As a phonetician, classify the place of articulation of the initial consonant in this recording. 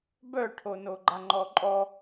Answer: labial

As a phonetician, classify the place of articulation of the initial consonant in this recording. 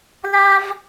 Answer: alveolar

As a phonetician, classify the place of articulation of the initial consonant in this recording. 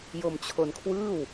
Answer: palatal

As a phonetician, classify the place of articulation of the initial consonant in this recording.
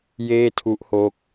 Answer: palatal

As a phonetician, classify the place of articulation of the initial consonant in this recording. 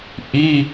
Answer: glottal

